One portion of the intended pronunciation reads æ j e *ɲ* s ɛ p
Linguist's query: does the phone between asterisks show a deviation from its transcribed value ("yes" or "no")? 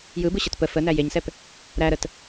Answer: no